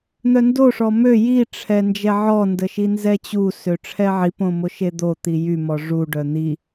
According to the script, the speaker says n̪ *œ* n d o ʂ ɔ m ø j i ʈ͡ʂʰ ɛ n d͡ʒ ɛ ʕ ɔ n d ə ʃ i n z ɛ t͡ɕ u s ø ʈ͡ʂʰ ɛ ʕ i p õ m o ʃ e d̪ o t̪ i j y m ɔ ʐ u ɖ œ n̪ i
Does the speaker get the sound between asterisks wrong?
no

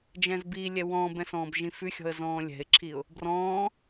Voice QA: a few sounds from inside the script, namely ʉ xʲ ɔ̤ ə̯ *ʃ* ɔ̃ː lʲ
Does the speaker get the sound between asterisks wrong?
yes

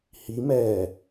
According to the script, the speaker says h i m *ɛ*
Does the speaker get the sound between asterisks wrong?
yes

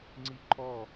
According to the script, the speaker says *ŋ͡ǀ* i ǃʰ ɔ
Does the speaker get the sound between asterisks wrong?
no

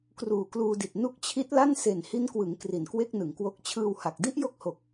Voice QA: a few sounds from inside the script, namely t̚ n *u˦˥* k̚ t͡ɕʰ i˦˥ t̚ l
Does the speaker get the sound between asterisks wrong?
no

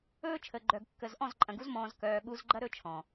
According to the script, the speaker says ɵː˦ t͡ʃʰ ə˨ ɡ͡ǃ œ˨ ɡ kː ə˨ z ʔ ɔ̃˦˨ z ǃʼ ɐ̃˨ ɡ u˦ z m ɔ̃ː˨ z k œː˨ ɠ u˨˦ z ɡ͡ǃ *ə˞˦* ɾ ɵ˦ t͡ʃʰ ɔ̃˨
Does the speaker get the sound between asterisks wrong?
yes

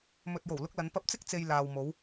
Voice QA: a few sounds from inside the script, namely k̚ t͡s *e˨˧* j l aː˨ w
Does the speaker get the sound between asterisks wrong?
yes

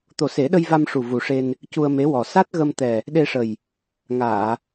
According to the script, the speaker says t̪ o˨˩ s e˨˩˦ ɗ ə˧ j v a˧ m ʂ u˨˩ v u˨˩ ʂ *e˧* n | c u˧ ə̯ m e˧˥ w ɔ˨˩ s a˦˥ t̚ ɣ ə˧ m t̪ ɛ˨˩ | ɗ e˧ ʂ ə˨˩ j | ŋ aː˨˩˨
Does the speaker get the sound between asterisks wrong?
no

